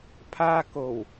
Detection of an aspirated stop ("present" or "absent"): present